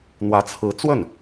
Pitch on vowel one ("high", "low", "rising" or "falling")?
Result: rising